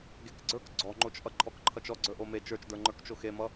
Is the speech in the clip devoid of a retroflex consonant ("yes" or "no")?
yes